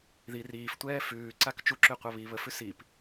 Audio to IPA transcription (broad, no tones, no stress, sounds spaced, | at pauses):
ð i r iː f tʷ ɛː f ʉː ǀ a k t͡ʃ u ǁ ʉ qʷ a β i β ə f ʉ s i p